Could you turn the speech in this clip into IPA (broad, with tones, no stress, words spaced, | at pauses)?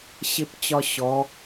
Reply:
ɕɪ˥pt͡ɕɒ˥ɕɔ˧˥